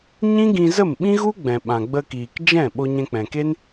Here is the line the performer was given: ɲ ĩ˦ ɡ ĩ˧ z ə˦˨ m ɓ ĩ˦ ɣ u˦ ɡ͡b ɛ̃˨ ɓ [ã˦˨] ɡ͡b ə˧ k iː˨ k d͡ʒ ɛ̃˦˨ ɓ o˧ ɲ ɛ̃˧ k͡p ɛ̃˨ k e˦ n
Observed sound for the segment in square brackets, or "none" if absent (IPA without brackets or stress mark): ã˨